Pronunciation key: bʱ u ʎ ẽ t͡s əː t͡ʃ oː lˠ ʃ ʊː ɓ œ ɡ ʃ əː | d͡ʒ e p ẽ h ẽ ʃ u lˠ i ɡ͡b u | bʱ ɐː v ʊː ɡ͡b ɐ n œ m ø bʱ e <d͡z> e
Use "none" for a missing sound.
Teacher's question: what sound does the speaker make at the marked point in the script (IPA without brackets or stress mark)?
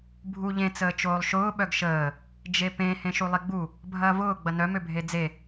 d͡z